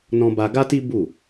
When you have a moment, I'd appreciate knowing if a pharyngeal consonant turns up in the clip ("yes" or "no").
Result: no